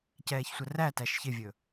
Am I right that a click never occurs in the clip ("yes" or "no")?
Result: yes